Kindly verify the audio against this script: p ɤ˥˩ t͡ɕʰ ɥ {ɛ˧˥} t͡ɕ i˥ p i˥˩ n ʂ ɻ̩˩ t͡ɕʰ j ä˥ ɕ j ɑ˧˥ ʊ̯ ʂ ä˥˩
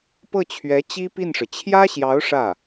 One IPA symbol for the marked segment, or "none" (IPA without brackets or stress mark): ɛ˧˥